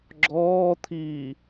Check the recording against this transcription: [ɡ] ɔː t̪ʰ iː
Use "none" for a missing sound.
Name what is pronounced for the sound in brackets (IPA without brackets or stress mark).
ɡ͡ǁ